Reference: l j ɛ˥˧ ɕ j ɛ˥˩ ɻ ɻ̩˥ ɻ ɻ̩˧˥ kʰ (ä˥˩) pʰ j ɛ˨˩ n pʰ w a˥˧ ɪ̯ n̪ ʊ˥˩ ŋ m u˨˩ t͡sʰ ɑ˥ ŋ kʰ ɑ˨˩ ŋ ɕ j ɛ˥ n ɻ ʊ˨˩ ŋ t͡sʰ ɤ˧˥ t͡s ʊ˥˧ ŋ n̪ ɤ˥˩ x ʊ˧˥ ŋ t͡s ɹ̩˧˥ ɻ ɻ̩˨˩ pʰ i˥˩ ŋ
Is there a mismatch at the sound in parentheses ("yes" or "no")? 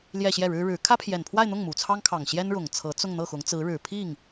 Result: yes